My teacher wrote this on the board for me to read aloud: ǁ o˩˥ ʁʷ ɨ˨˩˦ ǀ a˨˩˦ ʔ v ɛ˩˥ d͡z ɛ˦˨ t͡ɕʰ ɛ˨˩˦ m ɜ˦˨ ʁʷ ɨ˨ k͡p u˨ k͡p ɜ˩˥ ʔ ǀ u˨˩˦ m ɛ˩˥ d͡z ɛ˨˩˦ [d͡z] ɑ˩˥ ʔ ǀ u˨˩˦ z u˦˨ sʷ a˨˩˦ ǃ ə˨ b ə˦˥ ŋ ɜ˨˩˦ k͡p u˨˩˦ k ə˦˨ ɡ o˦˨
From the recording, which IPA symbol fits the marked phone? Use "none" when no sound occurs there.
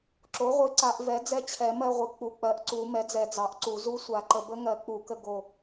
d͡z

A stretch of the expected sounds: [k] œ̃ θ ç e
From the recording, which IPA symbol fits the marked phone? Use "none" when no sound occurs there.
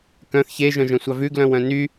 k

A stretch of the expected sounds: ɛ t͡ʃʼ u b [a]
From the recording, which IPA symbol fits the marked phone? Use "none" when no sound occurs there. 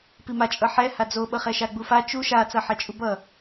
ʌ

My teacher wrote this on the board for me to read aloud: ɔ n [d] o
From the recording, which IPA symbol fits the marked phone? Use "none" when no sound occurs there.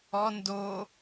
d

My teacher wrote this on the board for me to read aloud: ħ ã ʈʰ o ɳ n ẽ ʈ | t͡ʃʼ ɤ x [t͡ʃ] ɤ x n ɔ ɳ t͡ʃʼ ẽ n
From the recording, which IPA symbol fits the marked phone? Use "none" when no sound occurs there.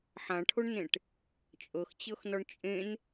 t͡ɕ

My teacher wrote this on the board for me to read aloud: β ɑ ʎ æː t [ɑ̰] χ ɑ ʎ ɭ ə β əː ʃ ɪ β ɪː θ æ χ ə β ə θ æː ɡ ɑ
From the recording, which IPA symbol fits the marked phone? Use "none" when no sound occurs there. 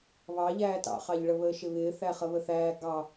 ɑ̰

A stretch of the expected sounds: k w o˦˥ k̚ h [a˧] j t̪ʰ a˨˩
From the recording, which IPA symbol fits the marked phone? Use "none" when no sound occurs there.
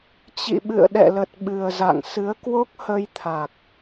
ə˧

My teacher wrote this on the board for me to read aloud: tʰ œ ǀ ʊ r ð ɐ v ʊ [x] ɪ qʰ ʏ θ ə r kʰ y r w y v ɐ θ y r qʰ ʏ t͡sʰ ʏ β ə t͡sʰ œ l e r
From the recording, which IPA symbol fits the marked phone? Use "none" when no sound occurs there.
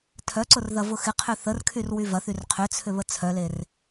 x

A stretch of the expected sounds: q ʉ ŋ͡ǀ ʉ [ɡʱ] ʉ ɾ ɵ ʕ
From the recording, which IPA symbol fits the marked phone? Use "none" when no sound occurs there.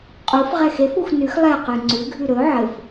ɡʱ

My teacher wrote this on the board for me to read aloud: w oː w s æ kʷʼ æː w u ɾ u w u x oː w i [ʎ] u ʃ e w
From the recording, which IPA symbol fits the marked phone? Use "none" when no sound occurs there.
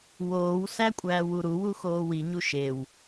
ɲ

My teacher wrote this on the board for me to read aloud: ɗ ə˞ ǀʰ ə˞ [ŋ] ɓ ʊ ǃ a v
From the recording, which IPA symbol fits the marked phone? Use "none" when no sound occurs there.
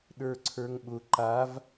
ŋ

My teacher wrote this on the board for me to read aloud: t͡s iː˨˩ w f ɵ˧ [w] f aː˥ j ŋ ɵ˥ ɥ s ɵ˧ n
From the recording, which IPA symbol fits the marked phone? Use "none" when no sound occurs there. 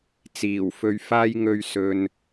ɥ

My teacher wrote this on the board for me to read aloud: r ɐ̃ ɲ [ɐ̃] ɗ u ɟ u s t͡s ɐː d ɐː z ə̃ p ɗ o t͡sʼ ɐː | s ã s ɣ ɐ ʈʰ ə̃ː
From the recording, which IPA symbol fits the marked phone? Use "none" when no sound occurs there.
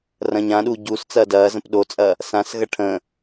ã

